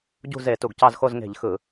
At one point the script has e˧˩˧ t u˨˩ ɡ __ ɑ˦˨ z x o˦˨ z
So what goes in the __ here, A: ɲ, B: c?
B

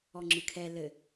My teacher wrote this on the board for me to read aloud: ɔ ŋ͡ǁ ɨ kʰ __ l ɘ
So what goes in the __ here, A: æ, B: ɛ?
B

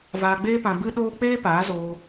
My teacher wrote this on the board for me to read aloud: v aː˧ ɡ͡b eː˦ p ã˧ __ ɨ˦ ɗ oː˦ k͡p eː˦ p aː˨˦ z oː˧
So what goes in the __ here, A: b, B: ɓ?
A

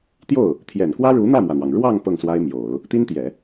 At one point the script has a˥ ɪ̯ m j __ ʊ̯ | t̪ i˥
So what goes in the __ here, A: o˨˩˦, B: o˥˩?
A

